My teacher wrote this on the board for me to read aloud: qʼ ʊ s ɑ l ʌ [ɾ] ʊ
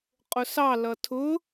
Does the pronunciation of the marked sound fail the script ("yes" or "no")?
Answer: yes